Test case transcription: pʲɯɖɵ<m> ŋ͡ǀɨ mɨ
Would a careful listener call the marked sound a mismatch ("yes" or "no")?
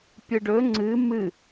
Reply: yes